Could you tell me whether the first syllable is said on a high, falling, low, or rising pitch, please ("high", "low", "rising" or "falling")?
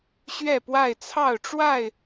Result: falling